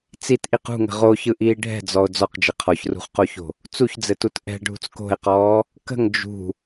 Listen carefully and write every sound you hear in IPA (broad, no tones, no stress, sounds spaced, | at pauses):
t͡s i t ʔ i q ṳ ŋ ə̤ ʁ o ç ɯ ʔ iː ɖʱ ɛ̤ d͡z ɔ o̯ d͡z ɔ q d͡ʒ ɘ qʰ ɔ ç r ṳ χ q o ç o̤ | t͡s u ç d͡z ɘ t u t ʔ ɛ̤ ɖʱ ṳ t͡s k o̤ e̯ q ɔː | k ə̤ ŋ d͡ʒ ṳ